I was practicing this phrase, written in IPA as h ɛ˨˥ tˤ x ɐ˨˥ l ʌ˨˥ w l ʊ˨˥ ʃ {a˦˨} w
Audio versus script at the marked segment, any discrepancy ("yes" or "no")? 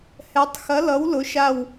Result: no